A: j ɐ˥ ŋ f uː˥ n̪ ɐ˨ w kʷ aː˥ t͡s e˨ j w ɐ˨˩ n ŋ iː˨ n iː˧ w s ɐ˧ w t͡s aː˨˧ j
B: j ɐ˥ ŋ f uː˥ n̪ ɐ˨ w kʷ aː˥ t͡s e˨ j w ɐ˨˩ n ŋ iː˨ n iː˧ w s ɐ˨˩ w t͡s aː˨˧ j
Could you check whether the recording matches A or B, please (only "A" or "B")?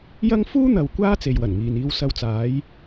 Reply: A